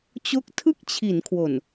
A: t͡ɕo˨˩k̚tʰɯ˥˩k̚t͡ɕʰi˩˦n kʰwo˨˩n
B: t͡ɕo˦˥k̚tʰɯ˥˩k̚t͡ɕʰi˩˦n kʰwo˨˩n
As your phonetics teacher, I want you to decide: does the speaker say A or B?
B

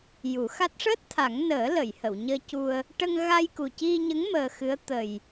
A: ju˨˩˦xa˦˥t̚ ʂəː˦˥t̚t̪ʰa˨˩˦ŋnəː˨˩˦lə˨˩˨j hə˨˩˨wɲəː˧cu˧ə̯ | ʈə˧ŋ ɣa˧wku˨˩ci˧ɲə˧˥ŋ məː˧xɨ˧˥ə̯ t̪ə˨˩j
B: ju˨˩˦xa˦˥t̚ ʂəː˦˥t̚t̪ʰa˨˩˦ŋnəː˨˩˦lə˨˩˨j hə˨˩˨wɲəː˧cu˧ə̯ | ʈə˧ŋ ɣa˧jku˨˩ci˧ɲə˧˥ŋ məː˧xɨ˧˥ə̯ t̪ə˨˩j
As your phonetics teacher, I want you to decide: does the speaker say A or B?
B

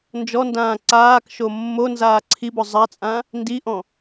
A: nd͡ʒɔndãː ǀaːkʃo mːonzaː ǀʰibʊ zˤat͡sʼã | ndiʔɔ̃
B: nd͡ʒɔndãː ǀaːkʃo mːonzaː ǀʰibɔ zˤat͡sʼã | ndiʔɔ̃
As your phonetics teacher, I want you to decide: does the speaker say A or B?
A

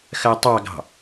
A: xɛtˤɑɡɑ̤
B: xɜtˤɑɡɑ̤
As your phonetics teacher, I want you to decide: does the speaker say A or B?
B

